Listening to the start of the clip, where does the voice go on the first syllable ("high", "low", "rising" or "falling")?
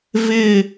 falling